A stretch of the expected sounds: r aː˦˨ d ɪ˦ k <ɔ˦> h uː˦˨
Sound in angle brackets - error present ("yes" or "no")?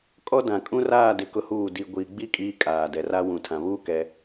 yes